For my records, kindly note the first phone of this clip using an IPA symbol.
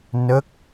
n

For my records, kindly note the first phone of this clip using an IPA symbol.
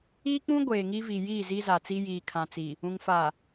iː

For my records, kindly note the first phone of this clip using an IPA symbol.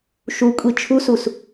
ʃ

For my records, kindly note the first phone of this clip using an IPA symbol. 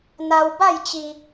n̪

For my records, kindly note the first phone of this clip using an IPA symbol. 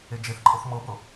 e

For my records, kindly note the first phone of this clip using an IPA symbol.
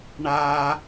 ɳ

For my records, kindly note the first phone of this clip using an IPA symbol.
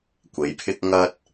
kʷ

